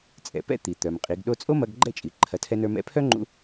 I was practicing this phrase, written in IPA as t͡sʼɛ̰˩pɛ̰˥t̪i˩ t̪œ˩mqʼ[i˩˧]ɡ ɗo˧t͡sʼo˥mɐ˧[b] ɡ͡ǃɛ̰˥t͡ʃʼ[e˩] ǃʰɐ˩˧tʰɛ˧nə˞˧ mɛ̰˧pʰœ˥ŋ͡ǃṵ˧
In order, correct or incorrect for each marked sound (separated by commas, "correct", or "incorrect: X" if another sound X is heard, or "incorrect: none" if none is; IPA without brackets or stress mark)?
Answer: correct, incorrect: ɡ, incorrect: i˩